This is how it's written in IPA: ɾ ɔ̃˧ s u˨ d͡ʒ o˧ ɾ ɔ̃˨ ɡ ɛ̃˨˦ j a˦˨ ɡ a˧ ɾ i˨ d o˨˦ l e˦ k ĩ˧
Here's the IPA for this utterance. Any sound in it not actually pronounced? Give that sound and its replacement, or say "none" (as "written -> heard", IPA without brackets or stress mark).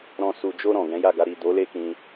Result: none